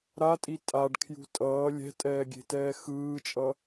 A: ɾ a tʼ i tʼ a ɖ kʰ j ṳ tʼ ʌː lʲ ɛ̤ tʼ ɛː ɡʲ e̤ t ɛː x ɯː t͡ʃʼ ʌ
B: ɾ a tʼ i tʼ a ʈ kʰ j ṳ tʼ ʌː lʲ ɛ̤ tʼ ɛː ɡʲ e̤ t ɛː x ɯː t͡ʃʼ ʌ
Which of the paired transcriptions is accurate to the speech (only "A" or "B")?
A